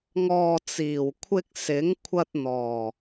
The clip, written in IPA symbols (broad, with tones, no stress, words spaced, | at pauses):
ŋɔː˨t͡siː˨˩wkʷʰɪ˧k̚ sɪ˨˥ŋ kʷʰɐ˧t̚n̪ɔː˨˩